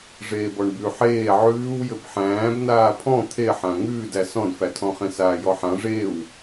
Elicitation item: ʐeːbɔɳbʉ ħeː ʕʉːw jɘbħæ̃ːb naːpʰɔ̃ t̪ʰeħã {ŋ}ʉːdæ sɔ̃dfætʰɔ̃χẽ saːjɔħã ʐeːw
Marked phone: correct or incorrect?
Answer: correct